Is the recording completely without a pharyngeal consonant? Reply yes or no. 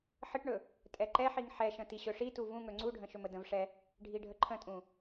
no